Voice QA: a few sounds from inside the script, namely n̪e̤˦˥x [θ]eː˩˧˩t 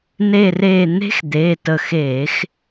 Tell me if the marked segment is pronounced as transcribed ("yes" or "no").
no